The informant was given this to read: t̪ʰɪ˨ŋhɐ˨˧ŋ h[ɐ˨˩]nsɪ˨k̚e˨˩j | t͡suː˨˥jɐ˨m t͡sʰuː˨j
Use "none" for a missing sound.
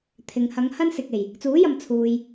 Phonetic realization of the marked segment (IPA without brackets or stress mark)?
ɐ˥